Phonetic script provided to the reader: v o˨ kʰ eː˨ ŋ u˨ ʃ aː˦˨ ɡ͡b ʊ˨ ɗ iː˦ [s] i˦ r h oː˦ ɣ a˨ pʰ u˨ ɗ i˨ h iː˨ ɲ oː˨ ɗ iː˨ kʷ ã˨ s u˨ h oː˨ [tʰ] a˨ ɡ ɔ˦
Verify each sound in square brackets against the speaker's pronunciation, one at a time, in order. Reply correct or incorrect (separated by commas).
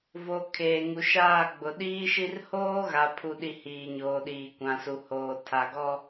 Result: incorrect, correct